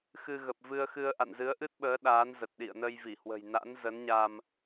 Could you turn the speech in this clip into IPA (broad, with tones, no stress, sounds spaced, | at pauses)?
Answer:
x ɨ˧ ɣ ə˨˩ p̚ v ɨ˧ ə̯ x ɨ˧ ə̯ ʔ a̰˧˨ n z ɨ˨˦ ə̯ ʔ ɨ˦˥ t̚ ɓ əː˨˦ ɗ aː˨˦ n z ə˨˩ t̚ ɗ ḭ˧˨ ə̯ n ə˧ j v i˧˩ h w ə̤˨˩ j n a̰˧˥ n z ə˨˦ n ɲ a˧ m